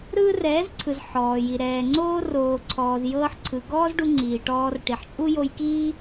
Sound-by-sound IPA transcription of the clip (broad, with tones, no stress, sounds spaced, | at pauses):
ɾ ɯː˦ r ɛː˨˦ z ǀʰ ɯ˨ z ħ ɔː˨ j i˨ ɾ ɛː˨ ŋ͡ǀ oː˦ r oː˨ ǀʰ ɔː˨ z j ɤː˧ ħ ǀʰ ɯ˨ ɡ ɔː˦ z ɖ u˧ ŋ͡ǀ iː˨ ʈ ɔː˧ r ʈ i˨ ħ t͡ʃʼ u˦ j o˧ j k iː˦